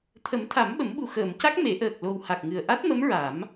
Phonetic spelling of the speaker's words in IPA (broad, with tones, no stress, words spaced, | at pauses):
t̪ʰə˨˩˦m t̪ʰa˨˩˦mɓə˨˩˦mɓu˨˩ xəː˨˩˨mca˦˥k̚ me˨˩˦ʔəː˨˩k̚ lo˨˩w ha˨˩k̚ŋɨ˨˩ə̯ʔa˦˥t̚mə˧˥m ɹa˨˩˦m